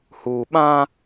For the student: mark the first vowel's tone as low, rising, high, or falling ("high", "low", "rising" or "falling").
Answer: low